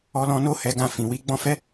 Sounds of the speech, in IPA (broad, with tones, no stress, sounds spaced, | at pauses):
ɔ˧ l ɔ̃˧ n o˦ h ɛ˧ ɡ ã˧ f ĩ˨ w i˧ ɡ͡b ɔ̃˧ f ɛ˦